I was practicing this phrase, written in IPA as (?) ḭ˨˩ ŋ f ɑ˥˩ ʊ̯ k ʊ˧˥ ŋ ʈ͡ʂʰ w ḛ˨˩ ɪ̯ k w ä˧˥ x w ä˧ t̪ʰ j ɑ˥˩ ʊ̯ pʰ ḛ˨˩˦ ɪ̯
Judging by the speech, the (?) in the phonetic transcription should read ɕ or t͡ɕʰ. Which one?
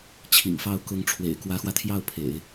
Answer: t͡ɕʰ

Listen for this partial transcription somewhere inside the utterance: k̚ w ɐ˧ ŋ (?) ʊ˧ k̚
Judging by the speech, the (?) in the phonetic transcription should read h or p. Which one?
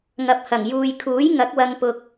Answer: p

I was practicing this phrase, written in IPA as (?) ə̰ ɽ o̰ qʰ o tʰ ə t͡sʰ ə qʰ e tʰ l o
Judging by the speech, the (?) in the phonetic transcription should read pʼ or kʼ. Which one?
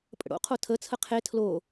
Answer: pʼ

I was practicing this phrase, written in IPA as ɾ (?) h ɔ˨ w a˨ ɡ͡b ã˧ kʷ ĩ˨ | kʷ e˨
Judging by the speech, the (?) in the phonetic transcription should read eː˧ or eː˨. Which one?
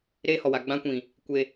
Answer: eː˧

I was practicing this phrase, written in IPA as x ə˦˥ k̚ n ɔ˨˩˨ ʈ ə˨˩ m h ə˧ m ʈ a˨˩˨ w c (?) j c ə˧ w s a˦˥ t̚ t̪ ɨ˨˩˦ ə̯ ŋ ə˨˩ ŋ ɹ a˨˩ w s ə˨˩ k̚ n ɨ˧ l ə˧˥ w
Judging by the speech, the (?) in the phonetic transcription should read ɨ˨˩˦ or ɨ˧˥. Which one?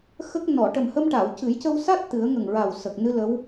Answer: ɨ˨˩˦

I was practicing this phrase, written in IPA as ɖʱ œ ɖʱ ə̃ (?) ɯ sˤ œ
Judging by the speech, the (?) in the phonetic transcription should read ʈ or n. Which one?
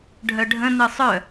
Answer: n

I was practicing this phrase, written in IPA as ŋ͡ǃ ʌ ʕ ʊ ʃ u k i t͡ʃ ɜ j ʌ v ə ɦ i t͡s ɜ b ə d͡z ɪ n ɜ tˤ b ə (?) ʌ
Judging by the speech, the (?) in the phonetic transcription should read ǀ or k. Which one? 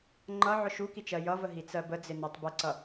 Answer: ǀ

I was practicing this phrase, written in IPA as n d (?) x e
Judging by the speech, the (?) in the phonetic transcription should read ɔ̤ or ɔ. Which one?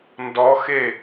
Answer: ɔ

